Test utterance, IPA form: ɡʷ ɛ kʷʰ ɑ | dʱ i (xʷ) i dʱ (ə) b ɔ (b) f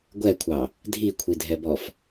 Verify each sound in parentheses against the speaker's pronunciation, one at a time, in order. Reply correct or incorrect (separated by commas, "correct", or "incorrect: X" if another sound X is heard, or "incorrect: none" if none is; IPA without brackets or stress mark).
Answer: incorrect: kʷʰ, incorrect: ɛ, incorrect: none